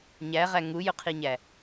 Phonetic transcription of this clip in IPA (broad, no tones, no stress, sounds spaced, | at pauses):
ɲ æ ʁ æ ŋ u j ʊ qʰ i ɲ æ